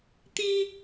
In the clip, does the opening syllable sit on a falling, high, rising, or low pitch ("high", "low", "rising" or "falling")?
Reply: high